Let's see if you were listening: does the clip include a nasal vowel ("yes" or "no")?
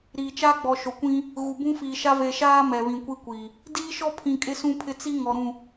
yes